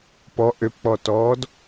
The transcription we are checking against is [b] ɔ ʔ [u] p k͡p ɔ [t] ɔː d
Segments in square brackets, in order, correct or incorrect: incorrect: p, incorrect: ø, correct

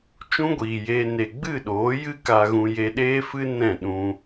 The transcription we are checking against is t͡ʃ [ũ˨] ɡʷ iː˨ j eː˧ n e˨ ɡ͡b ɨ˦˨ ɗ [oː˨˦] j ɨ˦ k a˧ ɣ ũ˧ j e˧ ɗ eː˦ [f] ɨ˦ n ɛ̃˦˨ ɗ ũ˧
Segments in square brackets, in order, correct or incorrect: incorrect: ũ˦, correct, correct

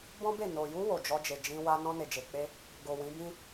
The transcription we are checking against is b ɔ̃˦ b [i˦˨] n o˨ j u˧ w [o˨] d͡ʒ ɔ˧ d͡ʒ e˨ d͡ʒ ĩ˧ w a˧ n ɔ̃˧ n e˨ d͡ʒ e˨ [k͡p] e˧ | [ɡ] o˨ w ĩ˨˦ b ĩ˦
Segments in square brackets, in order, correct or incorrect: incorrect: e˦˨, correct, correct, correct

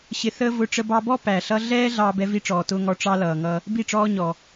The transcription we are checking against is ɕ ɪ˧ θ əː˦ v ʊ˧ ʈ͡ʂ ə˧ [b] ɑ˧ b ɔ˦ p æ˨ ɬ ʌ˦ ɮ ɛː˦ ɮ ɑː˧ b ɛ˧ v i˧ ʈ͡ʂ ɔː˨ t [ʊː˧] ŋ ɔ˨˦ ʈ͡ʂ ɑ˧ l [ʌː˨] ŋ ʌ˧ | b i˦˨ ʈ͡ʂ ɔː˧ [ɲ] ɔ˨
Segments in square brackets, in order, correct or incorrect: correct, correct, correct, correct

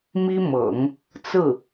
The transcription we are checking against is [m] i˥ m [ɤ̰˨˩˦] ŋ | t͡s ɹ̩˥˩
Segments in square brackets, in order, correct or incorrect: correct, correct

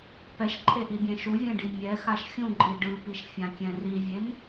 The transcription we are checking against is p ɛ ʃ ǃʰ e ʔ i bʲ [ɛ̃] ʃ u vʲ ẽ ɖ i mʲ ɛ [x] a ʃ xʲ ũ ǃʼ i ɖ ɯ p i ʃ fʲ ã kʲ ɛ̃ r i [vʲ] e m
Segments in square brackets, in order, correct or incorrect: correct, correct, correct

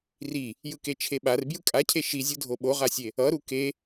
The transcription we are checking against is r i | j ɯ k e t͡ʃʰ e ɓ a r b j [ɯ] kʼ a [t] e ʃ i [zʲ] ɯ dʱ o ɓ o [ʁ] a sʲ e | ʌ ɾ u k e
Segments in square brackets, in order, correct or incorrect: correct, incorrect: cʰ, correct, correct

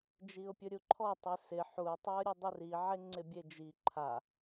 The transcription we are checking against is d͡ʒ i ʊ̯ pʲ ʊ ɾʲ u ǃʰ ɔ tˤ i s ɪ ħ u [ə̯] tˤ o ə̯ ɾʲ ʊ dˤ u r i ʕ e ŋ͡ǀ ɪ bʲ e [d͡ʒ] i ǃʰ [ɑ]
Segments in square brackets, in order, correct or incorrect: incorrect: ɪ̯, correct, incorrect: a

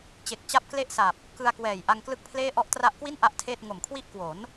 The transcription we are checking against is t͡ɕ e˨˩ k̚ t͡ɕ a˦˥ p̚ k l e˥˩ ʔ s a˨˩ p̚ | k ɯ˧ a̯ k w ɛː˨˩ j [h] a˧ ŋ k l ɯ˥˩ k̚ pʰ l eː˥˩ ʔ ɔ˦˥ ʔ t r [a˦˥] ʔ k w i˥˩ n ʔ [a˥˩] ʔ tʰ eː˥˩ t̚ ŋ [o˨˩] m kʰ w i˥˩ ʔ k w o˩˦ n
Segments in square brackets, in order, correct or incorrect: incorrect: ʔ, correct, correct, correct

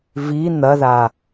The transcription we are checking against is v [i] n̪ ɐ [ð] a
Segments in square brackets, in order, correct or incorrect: correct, correct

